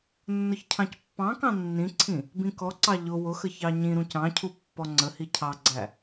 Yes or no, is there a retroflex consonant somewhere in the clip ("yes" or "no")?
no